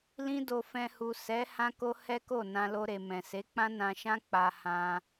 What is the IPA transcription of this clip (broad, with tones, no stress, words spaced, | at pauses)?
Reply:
lĩ˦do˧ fɛ̃˧hu˨ sɛ˨˦ hã˦ko˦ hɛ˦ko˦˨ nã˧lo˧ɾe˨ mɛ̃˨ se˨˦k͡pã˦nã˧ʃã˦ k͡pa˧hã˧